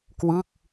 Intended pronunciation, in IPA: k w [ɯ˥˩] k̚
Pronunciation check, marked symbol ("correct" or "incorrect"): correct